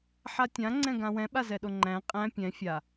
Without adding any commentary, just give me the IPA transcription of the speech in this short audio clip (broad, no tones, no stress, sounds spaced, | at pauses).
ħ a tʲ ã ŋ͡ǀ ɛ̃ ɡ ã w ɛ̃ ɓ a z ɛ ɗ o ŋ͡ǃ æ̃ qʼ æ̃ pʲ ɛ̃ fʲ a